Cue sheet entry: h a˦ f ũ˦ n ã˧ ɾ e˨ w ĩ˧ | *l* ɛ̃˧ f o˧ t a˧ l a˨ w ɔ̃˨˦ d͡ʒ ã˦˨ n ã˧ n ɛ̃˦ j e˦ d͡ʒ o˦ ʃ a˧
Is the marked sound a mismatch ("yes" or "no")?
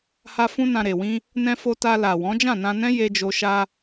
yes